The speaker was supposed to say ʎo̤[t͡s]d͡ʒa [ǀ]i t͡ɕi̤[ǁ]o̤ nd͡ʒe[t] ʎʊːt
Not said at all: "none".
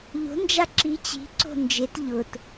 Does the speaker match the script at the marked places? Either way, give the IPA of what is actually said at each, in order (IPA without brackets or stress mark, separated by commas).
n, ǁ, ǀ, t